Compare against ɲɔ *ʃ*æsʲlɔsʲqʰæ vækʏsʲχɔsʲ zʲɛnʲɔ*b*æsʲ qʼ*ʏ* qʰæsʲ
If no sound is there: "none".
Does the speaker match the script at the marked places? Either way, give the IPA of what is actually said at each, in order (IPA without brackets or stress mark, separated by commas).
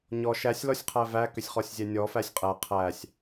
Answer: ʃ, f, ɛ